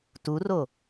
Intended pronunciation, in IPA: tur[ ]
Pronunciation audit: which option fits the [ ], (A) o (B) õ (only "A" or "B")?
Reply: A